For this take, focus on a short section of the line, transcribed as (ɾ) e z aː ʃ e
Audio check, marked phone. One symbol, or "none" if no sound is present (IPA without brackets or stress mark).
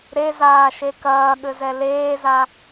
ɾ